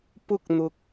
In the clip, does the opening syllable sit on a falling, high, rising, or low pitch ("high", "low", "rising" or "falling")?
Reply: high